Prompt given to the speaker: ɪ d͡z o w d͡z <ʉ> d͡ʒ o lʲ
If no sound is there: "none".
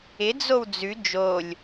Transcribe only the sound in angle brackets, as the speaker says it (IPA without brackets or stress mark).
ʉ